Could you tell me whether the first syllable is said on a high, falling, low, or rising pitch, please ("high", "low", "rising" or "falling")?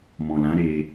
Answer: low